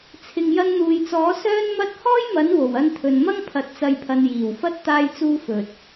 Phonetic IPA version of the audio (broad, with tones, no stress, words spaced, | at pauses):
t͡sʰɪ˨ŋjɐ˧nn̪uː˨jt͡sɔː˨˥ sœː˥nmɐ˥t̚ hɔː˥jmɐ˨˥n wo˨˩wɐ˧nt̪ʰɵ˨nmɐ˥ŋ pʰɐ˨t̚t͡sɐ˨jpʰɐ˨n jiː˨˩wfɐ˥t̚ t̪aː˧jt͡suː˧ fɵ˨t̚